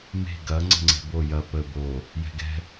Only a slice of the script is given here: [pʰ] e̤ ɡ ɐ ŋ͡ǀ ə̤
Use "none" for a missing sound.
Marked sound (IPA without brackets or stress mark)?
m